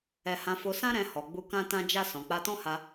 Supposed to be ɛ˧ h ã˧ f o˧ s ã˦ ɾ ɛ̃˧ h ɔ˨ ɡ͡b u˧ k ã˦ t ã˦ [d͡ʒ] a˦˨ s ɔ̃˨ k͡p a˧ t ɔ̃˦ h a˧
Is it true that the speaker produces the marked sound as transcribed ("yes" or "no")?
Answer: yes